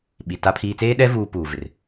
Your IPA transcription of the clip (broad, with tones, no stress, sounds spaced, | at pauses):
ɓ i˨ t a˦ pʰ iː˦ t͡s eː˦ ɗ ɛ˦ v uː˦ p uː˨ v ɪ˨ r